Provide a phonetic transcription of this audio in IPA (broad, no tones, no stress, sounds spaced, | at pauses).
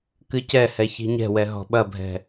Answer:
k ɨ c ɛ h ɛ ç i̤ ɲ ɛ̤ w ɛ ɦ ɔ̤ ɓ ɐ bʱ ɛ̤